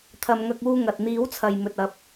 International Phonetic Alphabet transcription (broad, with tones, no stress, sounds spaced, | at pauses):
t̪ʰ ɐ˨ m ŋ ɐ˧ k̚ uː˧ ŋ ɐ˨ t̚ n̪ iː˨˥ w t͡sʰ ɐ˨ j m ɵ˨ t̚ ɐ˨˥ p̚